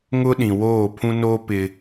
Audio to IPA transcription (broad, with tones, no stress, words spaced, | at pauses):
ŋʊ˦ɗĩ˨woː˦˨ pʰũ˦noː˦ pɪ˦